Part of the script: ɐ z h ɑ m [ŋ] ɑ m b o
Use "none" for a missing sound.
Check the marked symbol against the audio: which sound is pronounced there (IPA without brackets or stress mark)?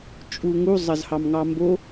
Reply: ŋ